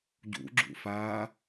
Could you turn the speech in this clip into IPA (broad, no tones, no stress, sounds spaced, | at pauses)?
ɟ ṵ ɡ͡ǁ ṵ f aː